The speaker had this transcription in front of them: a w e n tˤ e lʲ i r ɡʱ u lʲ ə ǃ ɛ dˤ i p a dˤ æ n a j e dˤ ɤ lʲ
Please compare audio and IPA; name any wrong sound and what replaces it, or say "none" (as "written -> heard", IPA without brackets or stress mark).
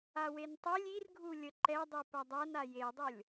none